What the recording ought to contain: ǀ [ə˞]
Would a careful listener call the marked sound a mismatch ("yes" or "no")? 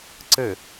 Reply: yes